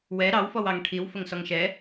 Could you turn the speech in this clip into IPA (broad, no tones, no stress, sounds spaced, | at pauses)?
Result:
w ɛ ɾ ɑ w f ɔ w ɑ ŋ ʈʰ i w f ə ŋ s ɔ ŋ ʃ ɛ